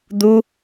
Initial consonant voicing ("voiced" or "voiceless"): voiced